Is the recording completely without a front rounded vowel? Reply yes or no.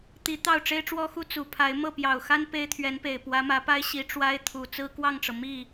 yes